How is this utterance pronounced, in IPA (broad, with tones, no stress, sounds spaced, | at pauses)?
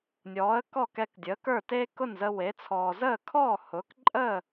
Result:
nʲ ɔː˩˥ ə̯ k ɔ˥˩ k ɛ˧ k dʲ əː˩˥ k ə˞˥˩ t eː˥ k ʊ˥˩ n z ə˧ w e˩˥ t͡sʰ ɔː˩ z əː˥˩ kʰ ɔ˥˩ h ʊː˩˥ k ǃʼ əː˥˩